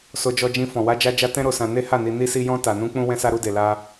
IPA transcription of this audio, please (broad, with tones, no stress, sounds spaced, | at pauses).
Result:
s o˧ d͡ʒ ɔ˧ d͡ʒ ĩ˧ f ɔ̃˨ w a˧ d͡ʒ a˧ d͡ʒ a˧ t ɛ̃˦ ɾ o˧ s ã˧ n e˦ h a˦˨ n i˧ n i˧ s i˧ j ɔ̃˧ t a˨ n ũ˧ k͡p ũ˧ w ɛ̃˧ s a˧ ɾ u˧ d e˨ l a˧